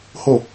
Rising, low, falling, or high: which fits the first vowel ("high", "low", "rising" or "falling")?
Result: falling